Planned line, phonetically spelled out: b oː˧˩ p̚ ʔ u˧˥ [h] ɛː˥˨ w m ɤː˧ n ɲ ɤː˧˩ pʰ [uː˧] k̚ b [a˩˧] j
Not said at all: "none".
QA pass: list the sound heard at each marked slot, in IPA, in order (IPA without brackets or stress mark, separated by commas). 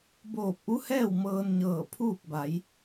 h, uː˥˨, a˩˧